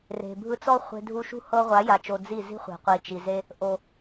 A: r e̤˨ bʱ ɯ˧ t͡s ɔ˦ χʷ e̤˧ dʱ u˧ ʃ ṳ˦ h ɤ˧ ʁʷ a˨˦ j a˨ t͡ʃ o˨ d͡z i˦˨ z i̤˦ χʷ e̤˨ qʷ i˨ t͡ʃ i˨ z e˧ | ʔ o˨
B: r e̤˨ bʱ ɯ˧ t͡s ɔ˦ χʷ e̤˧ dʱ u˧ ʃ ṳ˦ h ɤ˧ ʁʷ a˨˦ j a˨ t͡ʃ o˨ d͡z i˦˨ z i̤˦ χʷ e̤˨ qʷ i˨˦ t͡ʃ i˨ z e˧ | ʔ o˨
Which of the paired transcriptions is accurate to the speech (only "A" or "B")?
A